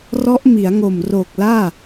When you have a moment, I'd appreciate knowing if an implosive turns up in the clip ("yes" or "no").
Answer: no